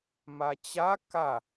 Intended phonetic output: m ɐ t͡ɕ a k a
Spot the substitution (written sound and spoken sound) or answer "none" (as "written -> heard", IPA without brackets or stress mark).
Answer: ɐ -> a